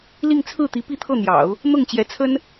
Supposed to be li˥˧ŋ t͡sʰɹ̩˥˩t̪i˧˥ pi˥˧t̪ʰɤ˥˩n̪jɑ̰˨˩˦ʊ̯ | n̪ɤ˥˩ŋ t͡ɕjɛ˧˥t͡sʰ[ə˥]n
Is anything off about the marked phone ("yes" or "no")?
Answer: no